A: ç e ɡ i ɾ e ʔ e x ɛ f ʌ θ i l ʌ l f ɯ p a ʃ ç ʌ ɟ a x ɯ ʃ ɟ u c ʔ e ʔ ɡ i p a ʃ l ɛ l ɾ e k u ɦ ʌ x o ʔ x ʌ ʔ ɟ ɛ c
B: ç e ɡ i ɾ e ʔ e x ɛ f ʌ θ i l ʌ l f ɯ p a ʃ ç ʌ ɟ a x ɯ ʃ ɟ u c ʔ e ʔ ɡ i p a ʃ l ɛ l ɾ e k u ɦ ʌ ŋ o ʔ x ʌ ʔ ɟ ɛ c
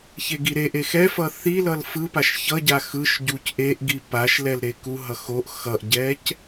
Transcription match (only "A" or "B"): A